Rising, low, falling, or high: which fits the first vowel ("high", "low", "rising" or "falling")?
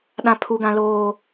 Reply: high